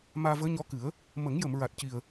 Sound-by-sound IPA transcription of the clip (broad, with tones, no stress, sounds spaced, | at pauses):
m aː˧ v əː˧˥ ɲ ɔ˧˥ k ɨ˨˩˦ ə̯ | m ə˨˩˦ ŋ j ə˨˩˨ m ɹ a˨˩ t̚ c i˨˩ ə̯